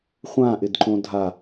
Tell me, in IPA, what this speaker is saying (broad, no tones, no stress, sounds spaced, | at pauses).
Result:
χʷ ã ʔ ɪ d ǃ õ dʱ a